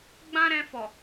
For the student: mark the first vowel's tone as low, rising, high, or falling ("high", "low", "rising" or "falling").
high